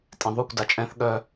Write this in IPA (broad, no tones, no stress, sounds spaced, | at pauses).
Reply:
tʼ ẽ ðˤ u kʷ d a t͡ʃʼ ɛ̃ θ ɠ œ